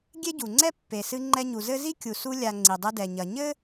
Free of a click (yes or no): no